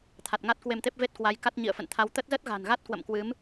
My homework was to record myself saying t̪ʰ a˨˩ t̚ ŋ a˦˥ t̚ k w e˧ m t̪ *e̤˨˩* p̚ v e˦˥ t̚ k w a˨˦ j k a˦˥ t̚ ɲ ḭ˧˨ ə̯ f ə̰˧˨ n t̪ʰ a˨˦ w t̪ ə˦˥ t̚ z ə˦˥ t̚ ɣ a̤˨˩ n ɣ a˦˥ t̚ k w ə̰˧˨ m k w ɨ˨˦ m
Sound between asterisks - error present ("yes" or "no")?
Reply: yes